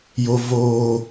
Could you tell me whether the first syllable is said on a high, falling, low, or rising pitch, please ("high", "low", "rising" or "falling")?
high